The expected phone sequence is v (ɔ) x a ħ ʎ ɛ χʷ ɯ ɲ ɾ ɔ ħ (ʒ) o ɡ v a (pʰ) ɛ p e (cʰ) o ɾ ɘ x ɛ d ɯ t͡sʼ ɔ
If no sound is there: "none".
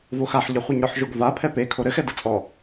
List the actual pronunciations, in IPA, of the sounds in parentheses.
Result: o, ʒ, pʰ, kʰ

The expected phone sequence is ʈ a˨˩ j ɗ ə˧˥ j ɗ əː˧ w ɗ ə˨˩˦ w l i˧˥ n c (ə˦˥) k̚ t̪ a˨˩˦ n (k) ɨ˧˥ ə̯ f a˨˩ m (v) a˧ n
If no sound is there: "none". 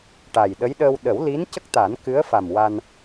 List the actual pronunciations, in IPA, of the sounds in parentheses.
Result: ə˦˥, k, w

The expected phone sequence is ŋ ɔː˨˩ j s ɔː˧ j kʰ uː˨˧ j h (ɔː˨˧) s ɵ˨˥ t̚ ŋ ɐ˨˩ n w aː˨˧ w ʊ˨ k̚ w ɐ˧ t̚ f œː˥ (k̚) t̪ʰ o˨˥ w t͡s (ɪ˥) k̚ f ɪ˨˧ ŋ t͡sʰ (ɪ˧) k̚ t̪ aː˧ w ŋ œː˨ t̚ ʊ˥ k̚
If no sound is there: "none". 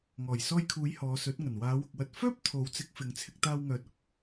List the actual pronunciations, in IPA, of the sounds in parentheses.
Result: ɔː˨˧, p̚, ɪ˨˥, ɪ˧

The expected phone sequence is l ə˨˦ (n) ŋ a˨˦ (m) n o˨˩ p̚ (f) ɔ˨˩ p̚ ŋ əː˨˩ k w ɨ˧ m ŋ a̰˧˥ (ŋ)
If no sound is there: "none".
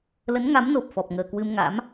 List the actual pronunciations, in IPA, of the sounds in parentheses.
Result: n, m, f, m

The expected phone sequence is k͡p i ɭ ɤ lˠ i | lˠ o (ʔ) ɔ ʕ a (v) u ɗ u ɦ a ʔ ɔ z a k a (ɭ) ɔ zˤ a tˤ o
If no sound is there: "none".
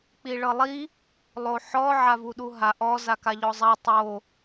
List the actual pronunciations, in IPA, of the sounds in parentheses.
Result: ħ, v, ʎ

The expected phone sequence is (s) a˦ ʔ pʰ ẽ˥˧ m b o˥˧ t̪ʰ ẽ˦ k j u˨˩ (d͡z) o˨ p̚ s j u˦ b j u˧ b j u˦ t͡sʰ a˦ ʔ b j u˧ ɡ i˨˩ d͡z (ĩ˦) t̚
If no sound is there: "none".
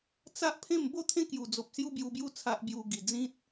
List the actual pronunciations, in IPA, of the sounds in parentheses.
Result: t͡s, d͡z, ĩ˦

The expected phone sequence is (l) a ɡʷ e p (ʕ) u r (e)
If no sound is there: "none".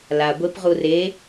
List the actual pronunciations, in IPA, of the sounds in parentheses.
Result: l, ʁ, e

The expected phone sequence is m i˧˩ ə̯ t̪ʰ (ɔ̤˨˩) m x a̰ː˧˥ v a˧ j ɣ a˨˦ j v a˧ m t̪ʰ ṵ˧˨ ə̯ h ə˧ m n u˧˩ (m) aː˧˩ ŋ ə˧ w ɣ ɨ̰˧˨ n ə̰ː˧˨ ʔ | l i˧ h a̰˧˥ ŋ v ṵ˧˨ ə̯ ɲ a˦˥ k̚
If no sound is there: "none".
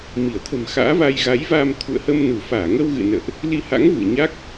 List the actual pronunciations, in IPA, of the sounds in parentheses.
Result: ə̤˨˩, f

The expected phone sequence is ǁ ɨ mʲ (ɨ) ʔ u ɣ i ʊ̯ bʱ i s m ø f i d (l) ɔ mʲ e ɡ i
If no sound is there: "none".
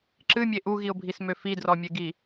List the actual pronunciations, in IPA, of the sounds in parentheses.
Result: e, r

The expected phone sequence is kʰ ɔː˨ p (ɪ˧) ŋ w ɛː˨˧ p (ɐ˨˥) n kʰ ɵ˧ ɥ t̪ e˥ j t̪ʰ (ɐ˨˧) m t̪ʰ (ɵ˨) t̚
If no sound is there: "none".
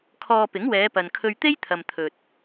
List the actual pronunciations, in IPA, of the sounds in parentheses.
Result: ɪ˨˥, ɐ˨, ɐ˨, ɵ˨

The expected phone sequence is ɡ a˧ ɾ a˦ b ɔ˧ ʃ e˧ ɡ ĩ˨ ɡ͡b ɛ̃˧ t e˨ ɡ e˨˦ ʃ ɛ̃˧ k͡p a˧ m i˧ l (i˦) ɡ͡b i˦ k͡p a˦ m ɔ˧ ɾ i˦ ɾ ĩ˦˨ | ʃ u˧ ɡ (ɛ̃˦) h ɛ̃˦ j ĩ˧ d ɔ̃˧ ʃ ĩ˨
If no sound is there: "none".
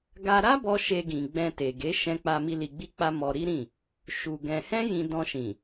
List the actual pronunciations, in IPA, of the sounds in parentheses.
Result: i˧, ɛ̃˧

